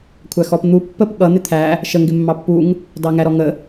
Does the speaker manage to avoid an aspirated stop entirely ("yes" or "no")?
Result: no